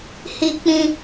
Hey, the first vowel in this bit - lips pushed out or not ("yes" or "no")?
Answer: no